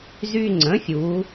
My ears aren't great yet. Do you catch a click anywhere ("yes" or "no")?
yes